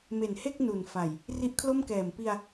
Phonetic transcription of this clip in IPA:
me˨˩nhe˥˩k̚ nu˨˩nfa˨˩j | ri˦˥ʔkʰlo˥˩mkɛː˨˩m pi˧a̯

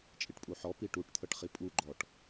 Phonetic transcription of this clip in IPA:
t͡ʃʼiʈpʼuħɔ piʈuʈt̪ʰɤʈ χipʼu ɡ͡ǃɔʈ

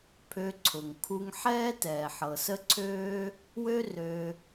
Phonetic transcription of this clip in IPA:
pʰø˧ǀʰʊ˩ŋ kʰu˧ŋħɛː˥ tɛː˩ħɤ˩sə˥ǀʰøː˥ | wø˥ rø˧

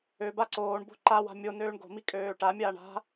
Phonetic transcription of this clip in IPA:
ø baǀoːɳbo̤ ǃawa̤ mʲo nøːɳɡo̤mi kʼøːʈamʲaːɳ a̤

